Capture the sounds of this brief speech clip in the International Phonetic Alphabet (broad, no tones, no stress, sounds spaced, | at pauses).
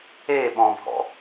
e ɓ ɔ̃ bʱ ɔ̰